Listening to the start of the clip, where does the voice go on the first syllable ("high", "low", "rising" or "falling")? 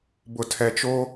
low